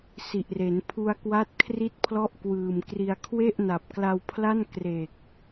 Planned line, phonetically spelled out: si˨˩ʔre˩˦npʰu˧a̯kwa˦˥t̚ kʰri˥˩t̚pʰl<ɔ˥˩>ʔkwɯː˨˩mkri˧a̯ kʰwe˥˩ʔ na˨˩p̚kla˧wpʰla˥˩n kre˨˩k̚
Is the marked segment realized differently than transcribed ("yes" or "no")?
no